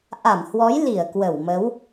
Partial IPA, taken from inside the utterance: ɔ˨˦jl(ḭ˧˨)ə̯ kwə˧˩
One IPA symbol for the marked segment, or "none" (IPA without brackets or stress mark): i˧˩